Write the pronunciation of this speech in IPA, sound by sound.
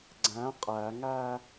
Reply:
ɡ͡ǀ æ̃ qʼ æ ŋ æ

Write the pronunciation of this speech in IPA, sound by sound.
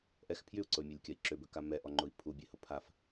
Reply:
ʔ ɛ x pʰ j y u̯ ǀ ʊ y̯ mʲ e lʲ kʲ ɐ i̯ ǁ ʏ b ʏ k a m ɛ ʔ ɔ ŋ͡ǃ ʊ i̯ pʰ u bʲ e h ʊ pʰ a f

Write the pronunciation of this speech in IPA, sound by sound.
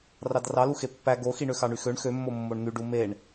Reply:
r ɑ d r ɑ l u x e pː æ ɡ o x i ɳ ø x ɑ ɳ y x ø ɳ x ø mː o mː o ɳ n̪ y ɖ u m e ɳ

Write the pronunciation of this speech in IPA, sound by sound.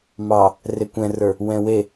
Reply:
m ɑ | r e kʷ ɛ̃ r ə˞ | w ɛ̃ w e

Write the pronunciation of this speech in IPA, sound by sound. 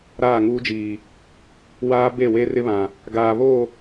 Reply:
ɾ aː˦˨ ŋ uː˦ d͡ʒ iː˨ | w aː˦ b e˦˨ w e˦ r ɪ˦ β ã˨ | ɡ aː˨ β oː˦˨

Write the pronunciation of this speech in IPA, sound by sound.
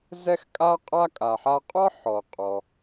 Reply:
z ɛ˥ x kʼ a˥ qʼ a˥ kʼ a˩ ħ a˧ qʼ ɒ˥ ħ ɔ˩ qʼ ɔ˩

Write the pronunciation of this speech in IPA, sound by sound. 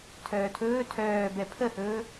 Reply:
tʰ œː tʰ ɵː tʰ œː b ɛ pʰ ə h ɵː

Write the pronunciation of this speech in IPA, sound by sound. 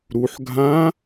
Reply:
ɾ u ħ ɡʱ ã

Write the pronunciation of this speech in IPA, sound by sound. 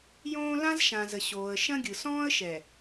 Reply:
j õː˦ l ã˦ z ʃ ã˨ z ə˨ ɕ oː˨ ə̯ ʃ ɐ̃˦ ɡʲ ɯ˨ s ɔ̃ː˦ ə̯ ʃ ɛ˨

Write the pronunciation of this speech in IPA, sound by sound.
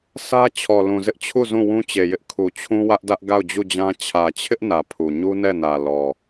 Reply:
s ä˦ t͡ɕʰ ɔ˨ l ũ˨ z ɪ˦ ʔ t͡ɕʰ u˦˨ z ũ˦˨ w ũ˦ t͡ɕ e˨ j ɪ˦ ʔ kʰ u˨ t͡ɕʰ ũ˦ w ä˦ ʔ d ä˦ ʔ ɡ a˦˨ ʊ̯ d͡ʑ u˦˨ d͡ʑ ã˦ t͡ɕʰ ä˨ t͡ɕʰ ɪ˦ ʔ n ä˨ pʰ u˨ ɲ u˦ n ɛ˦˨ n ä˨ l ɔ˨

